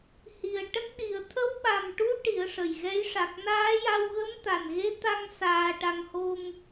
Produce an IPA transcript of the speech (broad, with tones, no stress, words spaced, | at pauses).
hi˨˩ə̯ʈə˦˥k̚ɗi˨˩˦ə̯ t̪ʰə˧˥wɓa˨˩mʈu˧˥ ʈi˨˩˦ə̯ʂə˨˩jɣɛ˧˥j ʂa˨˩k̚naː˧˥ja˧w ɣə˧˥mt̪a˨˩nɣe˧˥t̪a˧ŋ saː˧ʈa˧ŋ ho˧ŋ